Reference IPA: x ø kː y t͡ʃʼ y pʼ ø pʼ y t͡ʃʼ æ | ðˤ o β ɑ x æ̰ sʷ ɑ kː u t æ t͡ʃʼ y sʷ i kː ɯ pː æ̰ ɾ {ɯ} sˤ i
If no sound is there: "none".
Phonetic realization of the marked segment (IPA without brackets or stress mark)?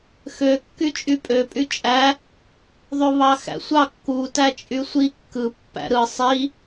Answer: ɯ